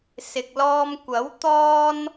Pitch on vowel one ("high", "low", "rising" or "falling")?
low